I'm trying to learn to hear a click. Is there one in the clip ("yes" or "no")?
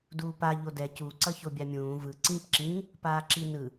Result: yes